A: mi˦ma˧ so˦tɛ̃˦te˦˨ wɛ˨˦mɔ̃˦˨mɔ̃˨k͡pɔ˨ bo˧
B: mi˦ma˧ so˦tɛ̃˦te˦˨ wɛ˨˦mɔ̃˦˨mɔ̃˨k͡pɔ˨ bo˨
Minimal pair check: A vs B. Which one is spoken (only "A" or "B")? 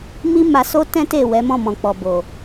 B